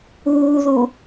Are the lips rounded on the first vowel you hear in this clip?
yes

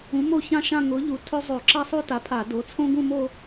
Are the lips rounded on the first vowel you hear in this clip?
yes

